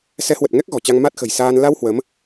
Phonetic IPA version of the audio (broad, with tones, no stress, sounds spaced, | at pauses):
s ɛ˨˦ h w ə˨˩ t̚ ŋ ɛ˦˥ k̚ ɣ ɔ̤˨˩ t͡ɕ a˧ ŋ m a˦˥ t̚ x ə̤˨˩ j s aː˧ n l a˧ w h w ə˨˦ m